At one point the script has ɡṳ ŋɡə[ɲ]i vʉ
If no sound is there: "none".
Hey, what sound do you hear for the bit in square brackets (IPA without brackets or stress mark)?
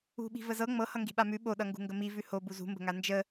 m